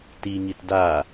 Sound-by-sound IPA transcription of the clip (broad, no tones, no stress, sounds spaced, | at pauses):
t i ŋ i t d a